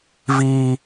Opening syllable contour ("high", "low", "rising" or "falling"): high